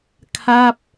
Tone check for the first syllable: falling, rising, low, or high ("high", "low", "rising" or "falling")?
falling